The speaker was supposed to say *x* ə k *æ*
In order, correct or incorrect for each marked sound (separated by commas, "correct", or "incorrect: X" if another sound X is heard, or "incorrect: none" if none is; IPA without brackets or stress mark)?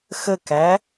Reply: correct, correct